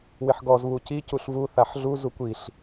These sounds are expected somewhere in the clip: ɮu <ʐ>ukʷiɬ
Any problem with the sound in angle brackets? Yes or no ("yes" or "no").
yes